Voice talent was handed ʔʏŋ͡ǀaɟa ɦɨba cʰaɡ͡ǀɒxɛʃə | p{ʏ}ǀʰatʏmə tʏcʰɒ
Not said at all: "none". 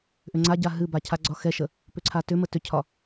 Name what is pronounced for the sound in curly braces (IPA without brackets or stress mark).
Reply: ʏ